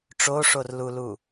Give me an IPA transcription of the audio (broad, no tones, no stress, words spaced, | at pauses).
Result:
ʈ͡ʂoʂorlulu